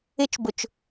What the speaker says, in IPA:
ɪ˥ t͡ʃ b ʊ˧ t͡ʃ

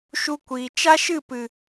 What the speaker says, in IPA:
ʃ u˧ kʷ iː˨ t͡ʃ a˦ ʃ ɨ˦˨ p ɨ˨

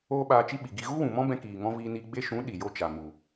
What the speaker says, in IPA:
oː˦ ɓ aː˧ t͡ʃ i˦ ɓ i˨ ɡ i˧ ɣ u˦ w ũ˨ m ɔ̃˦ b ɛ̃˧ k iː˨ ŋ ɔ̃˧ v iː˧ n i˧ ɡ͡b e˧ ʃ ũ˨˦ ɗ i˨ j o˦ t͡ʃ a˨ m u˨

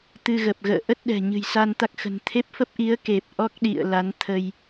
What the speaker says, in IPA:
t̪ ɨ˧ ɣ ə˨˩ p̚ ɣ ə̰ː˧˨ ʔ ə˦˥ t̚ ɗ ɛ̤˨˩ ɲ ɨ̤˨˩ j s a˧ n t̪ a˦˥ k̚ x ə̤˨˩ n t̪ʰ e˦˥ p̚ f ə˦˥ p̚ ʔ i˨˦ ə̯ k e˨˩ p̚ ʔ ɔ˦˥ k̚ ɗ ḭ˧˨ ə̯ l a˨˦ n t̪ʰ ə˧ j

